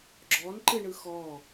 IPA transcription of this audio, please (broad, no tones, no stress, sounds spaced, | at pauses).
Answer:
ɡ͡ǁ ɔ n ǃ ɨ ɳ ɯ x ɔ